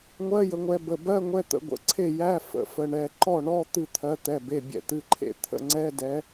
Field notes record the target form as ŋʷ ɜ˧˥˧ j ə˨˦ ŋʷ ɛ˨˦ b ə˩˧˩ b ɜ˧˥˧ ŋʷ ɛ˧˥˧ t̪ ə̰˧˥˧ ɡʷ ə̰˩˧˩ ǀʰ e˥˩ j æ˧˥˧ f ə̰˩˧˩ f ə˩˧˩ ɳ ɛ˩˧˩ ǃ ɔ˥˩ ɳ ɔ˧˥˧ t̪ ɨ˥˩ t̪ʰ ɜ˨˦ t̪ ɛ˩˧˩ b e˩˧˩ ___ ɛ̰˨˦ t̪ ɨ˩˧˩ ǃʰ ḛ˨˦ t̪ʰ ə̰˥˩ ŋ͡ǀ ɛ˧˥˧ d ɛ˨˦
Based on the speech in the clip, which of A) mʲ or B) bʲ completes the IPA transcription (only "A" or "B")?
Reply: B